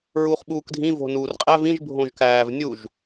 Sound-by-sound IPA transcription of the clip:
ɹ uː χ ɓ uː k dʱ ĩ v o̤ n uː r qʼ æ v ĩ ʒ bʱ õ ʒ k æː v nʲ u ʒ

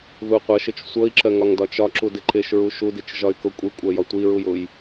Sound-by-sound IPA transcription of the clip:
ð u qʷ ʌ ʃ ɪ t͡ʃ sʷ ʌ i̯ ǁ ɜ ŋ ɒ ŋ d ɒ t͡ʃ ɒ ǁ u d ɪ ǃ ɪ ʃ ɹ u ʃ u d i t͡ʃ ʒ ɒ y̯ k ʊ kʷʼ i kʷʼ ɜ j ɒ tʷ i ɹ u j ʊ j

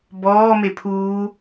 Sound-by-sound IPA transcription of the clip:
b ɔː m e pʰ uː

